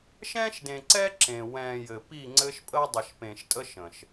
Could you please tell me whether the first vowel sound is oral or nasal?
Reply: nasal